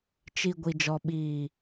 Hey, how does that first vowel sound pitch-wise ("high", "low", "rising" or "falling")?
low